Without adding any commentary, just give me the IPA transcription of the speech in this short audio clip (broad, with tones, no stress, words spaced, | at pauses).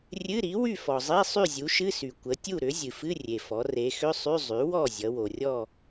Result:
rʲɨ˧˥˧ɾi˩˥ wy˥˨fɔ˩zˤi˧˥˧ sˤy˥˨zʲu˩˥ʃɨ˧˥˧sy˩ kʷə˩˧tʲu˥˨ɾʏ˩˥ zʲɨ˩fɨ˧˥˧rʲe˩fɔ˩˧ re˩˧xʏ˧˥˧sˤy˧˥˧ zˤy˩˥wɔ˥˨ zʲʌ˩˧ wo˩rʲɔ˥˨